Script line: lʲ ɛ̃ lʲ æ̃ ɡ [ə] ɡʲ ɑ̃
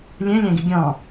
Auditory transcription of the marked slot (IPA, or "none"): ɪ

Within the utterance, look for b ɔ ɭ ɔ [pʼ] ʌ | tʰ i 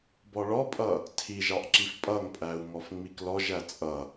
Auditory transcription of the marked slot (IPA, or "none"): pʼ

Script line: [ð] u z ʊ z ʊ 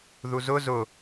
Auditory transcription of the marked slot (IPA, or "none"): ð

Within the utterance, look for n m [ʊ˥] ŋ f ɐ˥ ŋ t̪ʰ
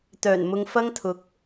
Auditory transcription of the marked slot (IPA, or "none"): ʊ˧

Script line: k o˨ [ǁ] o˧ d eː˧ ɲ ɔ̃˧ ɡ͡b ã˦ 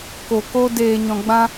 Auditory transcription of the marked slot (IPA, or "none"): k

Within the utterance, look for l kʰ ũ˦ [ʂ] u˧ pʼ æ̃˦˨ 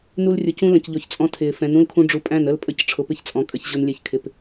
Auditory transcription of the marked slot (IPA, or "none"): ɖ͡ʐ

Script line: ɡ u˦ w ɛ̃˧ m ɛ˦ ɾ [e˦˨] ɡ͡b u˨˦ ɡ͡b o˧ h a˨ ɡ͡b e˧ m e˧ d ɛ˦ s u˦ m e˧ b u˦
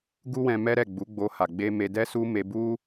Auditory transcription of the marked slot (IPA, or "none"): ɛ˦˨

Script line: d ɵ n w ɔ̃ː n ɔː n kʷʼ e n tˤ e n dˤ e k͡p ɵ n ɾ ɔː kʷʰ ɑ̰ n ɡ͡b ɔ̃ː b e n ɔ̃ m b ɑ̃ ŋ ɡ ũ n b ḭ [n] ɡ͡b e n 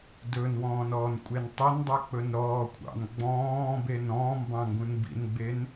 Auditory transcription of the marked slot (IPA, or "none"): n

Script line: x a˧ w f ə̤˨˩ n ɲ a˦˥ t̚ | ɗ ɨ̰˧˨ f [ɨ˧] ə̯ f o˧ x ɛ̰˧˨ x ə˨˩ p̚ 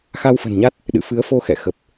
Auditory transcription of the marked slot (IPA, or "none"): ɨ˨˦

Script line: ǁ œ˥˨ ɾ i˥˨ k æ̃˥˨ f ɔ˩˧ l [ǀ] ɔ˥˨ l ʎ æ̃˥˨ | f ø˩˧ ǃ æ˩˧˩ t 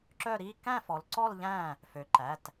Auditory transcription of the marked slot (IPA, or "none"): ǀ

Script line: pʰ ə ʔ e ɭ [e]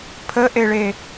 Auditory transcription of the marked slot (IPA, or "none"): e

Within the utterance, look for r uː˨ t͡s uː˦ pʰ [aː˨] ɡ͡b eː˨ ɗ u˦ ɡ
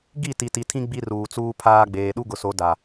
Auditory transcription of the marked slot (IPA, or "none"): aː˦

